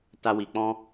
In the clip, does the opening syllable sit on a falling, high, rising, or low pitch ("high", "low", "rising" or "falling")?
high